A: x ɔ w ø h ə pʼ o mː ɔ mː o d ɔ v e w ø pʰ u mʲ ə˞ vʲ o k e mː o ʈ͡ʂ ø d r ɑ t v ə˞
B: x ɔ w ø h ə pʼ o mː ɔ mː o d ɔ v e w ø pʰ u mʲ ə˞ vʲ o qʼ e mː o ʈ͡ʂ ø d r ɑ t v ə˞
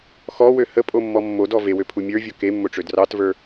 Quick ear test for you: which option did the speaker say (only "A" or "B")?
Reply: A